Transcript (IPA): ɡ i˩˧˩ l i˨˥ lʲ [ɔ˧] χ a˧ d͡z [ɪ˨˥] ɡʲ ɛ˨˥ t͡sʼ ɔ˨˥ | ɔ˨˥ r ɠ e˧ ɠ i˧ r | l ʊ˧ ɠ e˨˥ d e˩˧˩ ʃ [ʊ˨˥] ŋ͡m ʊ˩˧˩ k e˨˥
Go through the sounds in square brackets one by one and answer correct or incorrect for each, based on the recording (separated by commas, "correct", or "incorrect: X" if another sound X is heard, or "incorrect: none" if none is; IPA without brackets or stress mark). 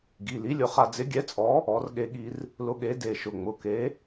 incorrect: ʊ˧, correct, incorrect: ʊ˩˧˩